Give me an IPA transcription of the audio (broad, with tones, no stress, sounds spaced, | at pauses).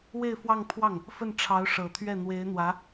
w e˥˧ ɪ̯ f w ɑ˥˧ ŋ pʰ w ɑ˥˩ ŋ | f ə˥˩ n ʈ͡ʂʰ ɑ˧˥ ʊ̯ ʂ ɤ˨˩ t̪ʰ ɥ ɛ˥˩ n̪ w e˧˥ ɪ̯ n̪ w ä˧˥